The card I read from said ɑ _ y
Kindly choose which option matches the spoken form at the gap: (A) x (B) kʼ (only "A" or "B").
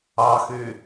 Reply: A